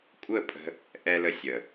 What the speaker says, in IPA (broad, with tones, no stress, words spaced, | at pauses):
kʷʼə˦˨ pʼə̤˦ | ʔɛ˧lə˧ sʲə˨